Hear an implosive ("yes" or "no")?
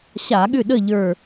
yes